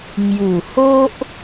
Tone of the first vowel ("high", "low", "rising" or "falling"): low